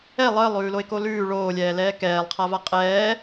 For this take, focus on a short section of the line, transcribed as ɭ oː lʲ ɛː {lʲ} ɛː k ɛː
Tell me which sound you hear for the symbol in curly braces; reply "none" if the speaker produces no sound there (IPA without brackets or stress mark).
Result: l